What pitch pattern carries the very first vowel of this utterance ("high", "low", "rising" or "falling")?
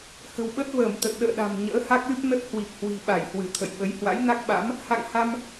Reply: low